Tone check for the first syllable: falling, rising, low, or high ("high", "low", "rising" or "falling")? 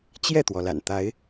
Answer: falling